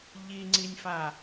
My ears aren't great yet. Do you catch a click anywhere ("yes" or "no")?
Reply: yes